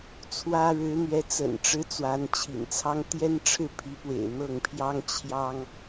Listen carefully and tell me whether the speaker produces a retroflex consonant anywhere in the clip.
yes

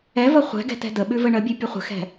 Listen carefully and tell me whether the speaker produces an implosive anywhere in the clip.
yes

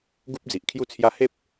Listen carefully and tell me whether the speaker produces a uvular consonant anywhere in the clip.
no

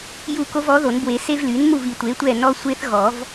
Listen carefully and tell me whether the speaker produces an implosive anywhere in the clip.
no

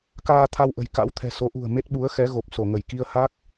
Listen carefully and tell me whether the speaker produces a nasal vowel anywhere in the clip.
no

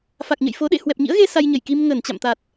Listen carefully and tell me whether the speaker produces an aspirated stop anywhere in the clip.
no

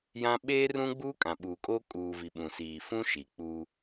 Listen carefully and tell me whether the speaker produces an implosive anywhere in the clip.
yes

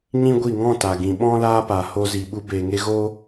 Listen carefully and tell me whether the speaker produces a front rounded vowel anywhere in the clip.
no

